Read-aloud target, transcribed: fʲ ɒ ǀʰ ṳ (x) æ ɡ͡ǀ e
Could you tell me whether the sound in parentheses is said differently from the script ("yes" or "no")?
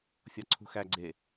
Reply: no